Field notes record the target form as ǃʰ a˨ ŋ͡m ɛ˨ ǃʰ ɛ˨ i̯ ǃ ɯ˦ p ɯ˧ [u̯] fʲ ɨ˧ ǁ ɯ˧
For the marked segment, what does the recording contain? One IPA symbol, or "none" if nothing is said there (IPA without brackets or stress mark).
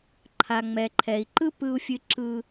u̯